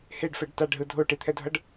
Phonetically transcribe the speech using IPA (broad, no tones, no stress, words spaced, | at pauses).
heɖfɛɖ taɖɦɯ dʱoʈit̪ʰɛdʱʌɖ